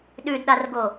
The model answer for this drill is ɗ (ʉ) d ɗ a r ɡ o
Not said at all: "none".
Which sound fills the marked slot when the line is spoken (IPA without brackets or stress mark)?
ʉ